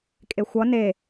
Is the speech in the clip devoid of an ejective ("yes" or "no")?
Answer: no